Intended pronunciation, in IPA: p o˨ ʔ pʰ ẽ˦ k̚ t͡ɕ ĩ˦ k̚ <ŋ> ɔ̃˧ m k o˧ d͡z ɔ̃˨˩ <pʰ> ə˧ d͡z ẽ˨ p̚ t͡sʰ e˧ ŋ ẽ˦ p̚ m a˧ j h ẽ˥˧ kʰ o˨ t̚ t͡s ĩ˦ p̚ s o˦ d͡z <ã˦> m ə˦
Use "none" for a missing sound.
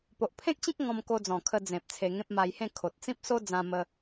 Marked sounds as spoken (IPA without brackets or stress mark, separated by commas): ŋ, kʰ, ã˦